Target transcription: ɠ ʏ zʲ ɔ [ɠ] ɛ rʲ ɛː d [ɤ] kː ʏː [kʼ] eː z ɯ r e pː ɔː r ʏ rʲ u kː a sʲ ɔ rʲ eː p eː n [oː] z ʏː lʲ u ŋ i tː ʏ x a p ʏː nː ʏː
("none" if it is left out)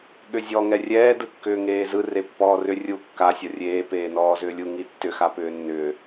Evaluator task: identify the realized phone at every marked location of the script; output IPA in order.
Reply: ŋ, ɯ, ŋ, ɔː

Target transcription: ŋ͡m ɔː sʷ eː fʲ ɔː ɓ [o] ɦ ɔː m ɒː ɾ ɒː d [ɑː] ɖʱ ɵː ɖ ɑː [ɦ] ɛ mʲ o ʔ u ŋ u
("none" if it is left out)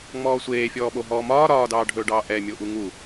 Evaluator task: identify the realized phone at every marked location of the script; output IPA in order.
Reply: o, ɑː, ʔ

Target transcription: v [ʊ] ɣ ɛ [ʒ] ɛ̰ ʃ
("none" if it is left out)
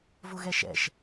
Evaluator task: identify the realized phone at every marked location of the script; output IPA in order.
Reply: ʊ, ʃ

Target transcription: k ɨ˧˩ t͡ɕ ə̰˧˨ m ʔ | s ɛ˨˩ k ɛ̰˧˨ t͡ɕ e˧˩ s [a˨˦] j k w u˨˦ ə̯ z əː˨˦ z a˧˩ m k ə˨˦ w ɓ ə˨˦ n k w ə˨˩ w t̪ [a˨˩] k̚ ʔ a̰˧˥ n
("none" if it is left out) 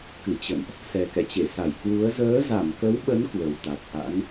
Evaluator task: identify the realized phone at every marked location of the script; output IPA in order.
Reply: a˧˩, a˨˩

